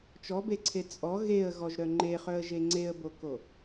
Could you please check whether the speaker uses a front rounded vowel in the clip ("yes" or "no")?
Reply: yes